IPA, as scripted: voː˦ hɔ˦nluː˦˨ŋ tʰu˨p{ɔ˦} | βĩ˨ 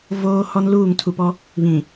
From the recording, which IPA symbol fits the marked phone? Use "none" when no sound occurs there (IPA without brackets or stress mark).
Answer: ɔ˦